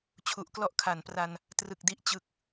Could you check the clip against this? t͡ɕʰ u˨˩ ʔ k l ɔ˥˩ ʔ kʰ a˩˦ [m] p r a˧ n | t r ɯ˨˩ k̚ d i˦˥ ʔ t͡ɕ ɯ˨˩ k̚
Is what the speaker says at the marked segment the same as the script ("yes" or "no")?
no